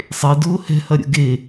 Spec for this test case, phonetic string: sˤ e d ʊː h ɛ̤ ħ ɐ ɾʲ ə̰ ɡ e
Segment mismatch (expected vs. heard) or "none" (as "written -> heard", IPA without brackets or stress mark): ħ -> h